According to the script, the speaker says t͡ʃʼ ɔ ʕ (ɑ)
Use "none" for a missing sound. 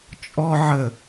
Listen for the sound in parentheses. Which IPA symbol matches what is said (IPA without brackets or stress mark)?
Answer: ə